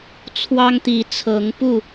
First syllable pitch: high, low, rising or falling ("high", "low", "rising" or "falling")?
high